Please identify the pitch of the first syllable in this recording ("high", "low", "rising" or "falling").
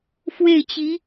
falling